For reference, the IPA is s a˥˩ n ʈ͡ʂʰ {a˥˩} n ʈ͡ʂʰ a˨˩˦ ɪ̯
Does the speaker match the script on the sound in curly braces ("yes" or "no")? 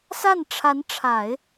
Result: no